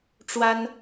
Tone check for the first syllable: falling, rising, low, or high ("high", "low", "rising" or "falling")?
high